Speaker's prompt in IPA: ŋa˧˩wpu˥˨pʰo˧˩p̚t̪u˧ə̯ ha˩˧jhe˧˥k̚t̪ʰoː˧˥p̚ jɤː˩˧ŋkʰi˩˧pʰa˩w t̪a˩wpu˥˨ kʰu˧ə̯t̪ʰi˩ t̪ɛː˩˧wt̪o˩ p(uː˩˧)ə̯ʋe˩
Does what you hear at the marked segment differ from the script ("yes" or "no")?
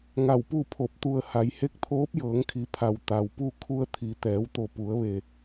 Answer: yes